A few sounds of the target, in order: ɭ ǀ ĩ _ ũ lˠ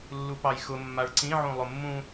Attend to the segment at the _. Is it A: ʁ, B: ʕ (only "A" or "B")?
B